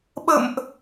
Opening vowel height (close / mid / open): mid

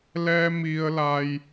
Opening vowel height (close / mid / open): mid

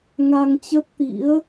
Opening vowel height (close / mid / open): open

